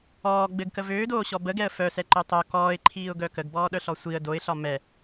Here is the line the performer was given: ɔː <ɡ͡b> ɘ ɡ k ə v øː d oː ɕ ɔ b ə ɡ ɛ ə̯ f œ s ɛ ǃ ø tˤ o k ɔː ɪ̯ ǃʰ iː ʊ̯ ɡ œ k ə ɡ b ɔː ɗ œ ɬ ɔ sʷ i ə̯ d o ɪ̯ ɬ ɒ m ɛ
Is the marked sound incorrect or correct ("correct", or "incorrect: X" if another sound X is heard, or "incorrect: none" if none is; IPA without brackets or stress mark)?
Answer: correct